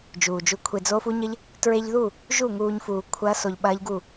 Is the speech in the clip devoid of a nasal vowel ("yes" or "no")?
yes